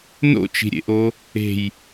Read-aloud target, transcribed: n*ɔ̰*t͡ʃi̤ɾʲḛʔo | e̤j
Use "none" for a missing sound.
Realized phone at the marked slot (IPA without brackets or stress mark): o̰